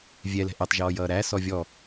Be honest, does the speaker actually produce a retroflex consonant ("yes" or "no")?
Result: no